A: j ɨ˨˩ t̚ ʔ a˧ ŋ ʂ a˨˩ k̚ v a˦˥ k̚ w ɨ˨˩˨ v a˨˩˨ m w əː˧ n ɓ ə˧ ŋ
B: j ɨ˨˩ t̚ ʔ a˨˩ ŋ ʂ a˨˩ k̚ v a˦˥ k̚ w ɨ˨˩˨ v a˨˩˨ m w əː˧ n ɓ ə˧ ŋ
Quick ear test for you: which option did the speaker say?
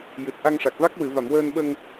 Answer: A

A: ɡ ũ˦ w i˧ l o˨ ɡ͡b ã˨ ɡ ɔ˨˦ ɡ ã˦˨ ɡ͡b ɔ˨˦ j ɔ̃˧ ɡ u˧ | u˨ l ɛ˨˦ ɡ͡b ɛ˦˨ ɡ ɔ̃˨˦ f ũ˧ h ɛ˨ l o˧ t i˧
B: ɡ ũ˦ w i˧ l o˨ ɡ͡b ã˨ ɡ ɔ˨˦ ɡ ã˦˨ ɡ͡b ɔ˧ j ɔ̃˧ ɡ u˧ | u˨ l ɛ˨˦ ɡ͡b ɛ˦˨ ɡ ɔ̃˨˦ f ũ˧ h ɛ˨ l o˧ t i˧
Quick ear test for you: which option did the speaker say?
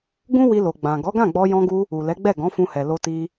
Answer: B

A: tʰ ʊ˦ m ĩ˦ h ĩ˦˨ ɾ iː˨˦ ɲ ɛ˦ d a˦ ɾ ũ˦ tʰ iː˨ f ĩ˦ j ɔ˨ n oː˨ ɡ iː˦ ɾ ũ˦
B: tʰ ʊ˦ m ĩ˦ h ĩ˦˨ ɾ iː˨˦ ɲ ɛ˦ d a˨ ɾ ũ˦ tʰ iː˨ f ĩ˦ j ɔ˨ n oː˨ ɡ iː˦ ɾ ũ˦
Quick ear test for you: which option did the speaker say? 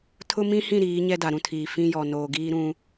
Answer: B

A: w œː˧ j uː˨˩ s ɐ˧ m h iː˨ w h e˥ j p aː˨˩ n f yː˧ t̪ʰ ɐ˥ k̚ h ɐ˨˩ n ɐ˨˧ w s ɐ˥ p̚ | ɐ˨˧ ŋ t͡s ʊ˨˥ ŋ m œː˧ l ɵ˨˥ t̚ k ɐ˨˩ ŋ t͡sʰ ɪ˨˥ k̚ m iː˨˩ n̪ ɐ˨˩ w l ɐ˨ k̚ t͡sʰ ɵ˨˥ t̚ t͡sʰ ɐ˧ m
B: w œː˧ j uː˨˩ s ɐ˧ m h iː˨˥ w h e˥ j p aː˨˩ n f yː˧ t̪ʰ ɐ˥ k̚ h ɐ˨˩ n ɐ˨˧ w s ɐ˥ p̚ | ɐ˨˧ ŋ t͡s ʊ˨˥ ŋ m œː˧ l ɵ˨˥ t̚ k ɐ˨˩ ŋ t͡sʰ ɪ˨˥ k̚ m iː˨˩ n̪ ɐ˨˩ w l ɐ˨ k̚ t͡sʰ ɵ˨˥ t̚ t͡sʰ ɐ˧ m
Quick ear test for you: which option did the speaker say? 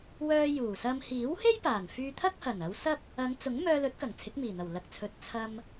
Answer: B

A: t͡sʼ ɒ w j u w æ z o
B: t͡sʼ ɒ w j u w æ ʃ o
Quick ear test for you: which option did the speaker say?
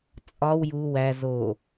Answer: A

